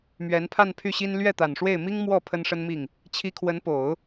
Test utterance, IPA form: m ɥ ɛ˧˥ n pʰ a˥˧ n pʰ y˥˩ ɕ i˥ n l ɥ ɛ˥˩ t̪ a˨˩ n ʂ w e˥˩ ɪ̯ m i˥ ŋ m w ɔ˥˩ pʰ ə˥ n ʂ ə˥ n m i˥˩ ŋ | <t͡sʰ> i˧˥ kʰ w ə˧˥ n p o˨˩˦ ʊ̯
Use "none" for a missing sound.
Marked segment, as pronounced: t͡ɕʰ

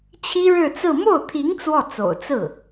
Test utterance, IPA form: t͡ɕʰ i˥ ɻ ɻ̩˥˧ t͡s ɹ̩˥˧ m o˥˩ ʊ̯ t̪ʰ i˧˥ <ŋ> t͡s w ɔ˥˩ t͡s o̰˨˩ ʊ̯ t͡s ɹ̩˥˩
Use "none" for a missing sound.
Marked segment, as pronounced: ŋ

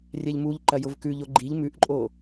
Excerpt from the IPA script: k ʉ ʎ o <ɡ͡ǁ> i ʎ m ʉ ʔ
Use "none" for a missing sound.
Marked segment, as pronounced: ɡ͡ǃ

